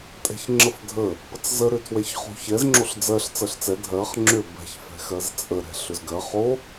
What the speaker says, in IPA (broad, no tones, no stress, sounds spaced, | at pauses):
tʼ ɛ̤ ç ŋ͡ǁ ə f dʱ ə | p ə t͡s z ə ɾ ʏ tʰ w ɛ ç χ o̤ ç ɛ z ŋ͡ǁ o ɬ d͡z ɜ ɬ t͡s ɜ ɬ t͡s ɛ dʱ ɜ χ ŋ͡ǁ ʏ b ɛ̤ ç f ɛ̤ x ɜ z t͡sʼ ə ɾ ɛ̤ ɬ ʏ z ɡ ɜ χ o